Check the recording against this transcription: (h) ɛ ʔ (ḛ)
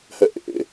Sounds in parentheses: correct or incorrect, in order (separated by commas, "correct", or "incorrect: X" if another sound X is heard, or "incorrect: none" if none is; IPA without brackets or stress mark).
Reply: correct, correct